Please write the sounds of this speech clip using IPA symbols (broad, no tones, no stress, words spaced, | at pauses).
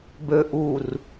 bø ʔur